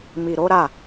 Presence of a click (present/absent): absent